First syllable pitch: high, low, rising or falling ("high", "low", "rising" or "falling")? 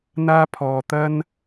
high